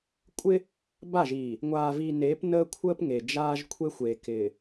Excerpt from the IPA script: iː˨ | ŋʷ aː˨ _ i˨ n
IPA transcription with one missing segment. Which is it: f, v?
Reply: v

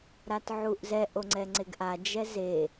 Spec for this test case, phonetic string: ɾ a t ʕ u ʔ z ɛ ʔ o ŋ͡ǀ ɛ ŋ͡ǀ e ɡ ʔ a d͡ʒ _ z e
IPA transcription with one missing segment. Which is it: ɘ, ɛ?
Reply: ɛ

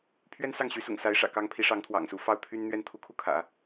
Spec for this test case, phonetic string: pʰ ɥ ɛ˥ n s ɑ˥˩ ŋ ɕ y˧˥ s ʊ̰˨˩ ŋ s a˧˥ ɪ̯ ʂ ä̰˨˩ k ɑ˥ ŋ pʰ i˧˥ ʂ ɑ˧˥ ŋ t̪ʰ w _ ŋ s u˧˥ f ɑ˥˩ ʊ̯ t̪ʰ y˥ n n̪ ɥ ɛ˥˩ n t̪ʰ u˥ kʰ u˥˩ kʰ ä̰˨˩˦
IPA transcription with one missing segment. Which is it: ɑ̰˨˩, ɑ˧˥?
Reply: ɑ̰˨˩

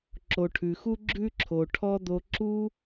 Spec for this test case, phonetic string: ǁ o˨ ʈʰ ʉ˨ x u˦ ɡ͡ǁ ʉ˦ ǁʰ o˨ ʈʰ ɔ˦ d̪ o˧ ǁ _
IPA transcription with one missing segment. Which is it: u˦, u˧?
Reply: u˦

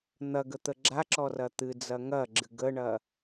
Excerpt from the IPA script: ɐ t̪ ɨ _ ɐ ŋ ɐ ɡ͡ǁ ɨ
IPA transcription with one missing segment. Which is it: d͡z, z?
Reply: d͡z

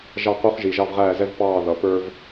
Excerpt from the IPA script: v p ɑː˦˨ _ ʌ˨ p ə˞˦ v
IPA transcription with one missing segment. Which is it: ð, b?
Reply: ð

